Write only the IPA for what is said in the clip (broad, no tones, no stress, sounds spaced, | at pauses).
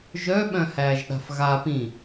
ʒ œ ɓ œ̃ h æː ʒ ɗ a̤ f ɣ a p ĩ